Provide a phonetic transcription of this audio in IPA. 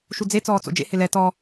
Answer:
ʃ u d͡z e t͡s ɔː t͡s o̰ d͡ʒ ḛ h ɪ l ɛ t ɔ

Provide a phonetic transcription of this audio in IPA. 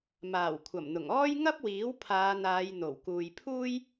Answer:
m aː˨˩ w kʷʰ ɐ˨˩ m n̪ ʊ˨˩ ŋ ɔː˥ j ŋ ɐ˥ p̚ w iː˨˥ w pʰ aː˨˧ n̪ aː˨˧ j n̪ o˨˩ w k uː˨ j pʰ uː˥ j

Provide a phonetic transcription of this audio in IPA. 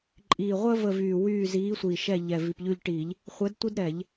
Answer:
ǃʼ iː˨˩ ʁʷ əː˥ v ə˦˨ v yː˨˩ w yː˦˨ z iː˨˦ sʷ iː˨˩ ʃ ɛ˦˨ ʎ ɛ˨˩ v i˨˩ p ʎ ʉ˦˨ ʎ ʈ i˧˩˧ ʎ | χʷ ɛ˨˦ d tʷ i˥ d ɾ ɛ˧˩˧ ʎ

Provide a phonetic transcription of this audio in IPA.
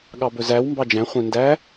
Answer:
ɠ ɑ b ɵ z æ w m b ɑ d͡ʒ æ̃ χʷ ẽ n d æ

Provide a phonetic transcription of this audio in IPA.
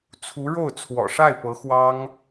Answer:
t͡sʰ u˧˥ ɻ o˥˩ ʊ̯ t͡sʰ w ɔ̰˨˩ ʂ a˥˩ ɪ̯ p ɤ˧˥ x w ɑ˥ ŋ

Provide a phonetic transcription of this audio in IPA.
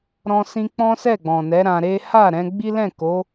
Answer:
ɾ ɔ̃˧ s ĩ˧ k͡p ɔ̃˦ s ɛ˦˨ ɡ͡b ɔ̃˨ n ɛ˨˦ ɾ ã˧ ɾ e˦ h a˦˨ ɾ ɛ̃˧ ɡ͡b i˦ l ɛ̃˦˨ k o˨˦

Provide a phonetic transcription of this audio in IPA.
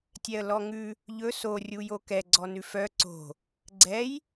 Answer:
tʲ ɛ ə̯ l ɔ ŋ ʉ | ʎ ɵ s o rʲ u j o k ɛ ɡ͡ǀ ɔ n ʉ f œ ǀ o̤ | ɡ͡ǀ ɛ j

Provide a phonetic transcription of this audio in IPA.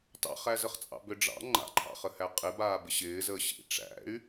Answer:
t ɑ̰ χ æ z ə χ t͡sʼ ɑ̰ b ʏ ɖ͡ʐ ɑ̰ ŋ͡ǃ a̰ ǃʰ ɑ̰ χ ə h æ qʼ ɪ b aː b ɪ ɕ ɪː z əː ɕ ḭ ʈ͡ʂ æ̰ y̯

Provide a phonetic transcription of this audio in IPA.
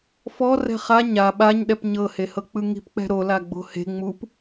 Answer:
f ɔ r ɛ̤ χ a ɲ a ɓ a ɲ ɗ ɛ p ɲ ɤ h e h ɤ k͡p ɯ ŋ i̤ p k͡p ɛ̤ ɾ o l a ɡ͡b o̤ h e̤ ŋ͡m u p

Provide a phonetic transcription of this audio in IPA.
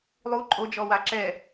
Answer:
lˠ u ǃʼ o d͡ʒ ɔ w a ǁ ɛ

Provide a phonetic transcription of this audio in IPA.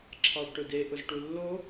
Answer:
ǁʰ ɑ ɖ ʈ ʊ d e ʔ ʊ z ʈ u lː o

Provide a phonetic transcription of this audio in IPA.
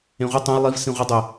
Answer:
ẽ ʁʷ ɯ tˤ ẽ j lˠ i v s ĩ ʁʷ ʌ dˤ e

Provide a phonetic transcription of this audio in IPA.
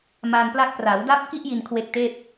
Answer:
m a˧ n p l a˦˥ k̚ p r a˩˦ w d a˦˥ p̚ k i˦˥ ʔ j i˧ n kʰ w e˦˥ k̚ t eː˥˩ p̚

